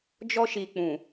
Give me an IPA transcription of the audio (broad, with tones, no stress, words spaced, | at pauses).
d͡ʒɔ˦ʃi˨k͡pũ˨